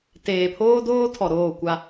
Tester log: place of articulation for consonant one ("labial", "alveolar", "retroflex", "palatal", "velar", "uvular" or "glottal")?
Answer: alveolar